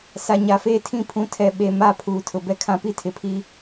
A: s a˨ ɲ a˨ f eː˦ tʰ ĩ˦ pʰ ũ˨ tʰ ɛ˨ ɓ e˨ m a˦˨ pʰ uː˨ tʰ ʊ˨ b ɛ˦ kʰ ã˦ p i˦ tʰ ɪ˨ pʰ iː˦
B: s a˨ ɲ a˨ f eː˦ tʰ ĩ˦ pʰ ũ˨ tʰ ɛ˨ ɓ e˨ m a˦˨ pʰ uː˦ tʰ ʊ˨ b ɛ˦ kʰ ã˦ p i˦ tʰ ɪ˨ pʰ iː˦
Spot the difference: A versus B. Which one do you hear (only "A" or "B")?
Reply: A